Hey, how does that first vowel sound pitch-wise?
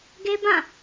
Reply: high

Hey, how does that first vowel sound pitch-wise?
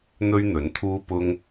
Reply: high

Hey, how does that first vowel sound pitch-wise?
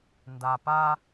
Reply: low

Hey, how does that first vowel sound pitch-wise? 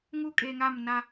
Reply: high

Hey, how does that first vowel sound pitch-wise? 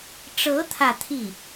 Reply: rising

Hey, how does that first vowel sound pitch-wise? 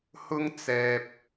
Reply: high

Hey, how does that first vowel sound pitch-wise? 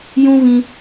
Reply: high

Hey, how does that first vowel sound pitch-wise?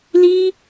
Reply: high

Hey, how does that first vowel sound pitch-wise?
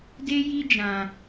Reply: high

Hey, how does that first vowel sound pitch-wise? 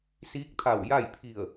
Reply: rising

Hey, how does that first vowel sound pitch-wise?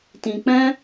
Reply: low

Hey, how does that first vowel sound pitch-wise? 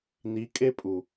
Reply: rising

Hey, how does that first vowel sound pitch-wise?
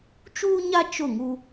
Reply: high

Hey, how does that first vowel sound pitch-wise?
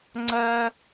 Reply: high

